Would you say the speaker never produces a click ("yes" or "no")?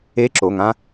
no